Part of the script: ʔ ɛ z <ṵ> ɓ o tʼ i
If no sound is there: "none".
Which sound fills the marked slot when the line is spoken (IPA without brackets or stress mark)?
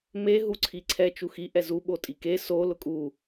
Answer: u